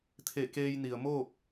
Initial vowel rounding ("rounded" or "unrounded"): unrounded